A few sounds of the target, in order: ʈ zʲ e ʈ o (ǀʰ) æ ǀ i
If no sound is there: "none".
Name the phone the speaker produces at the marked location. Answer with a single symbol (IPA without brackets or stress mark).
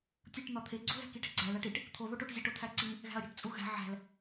t̪ʰ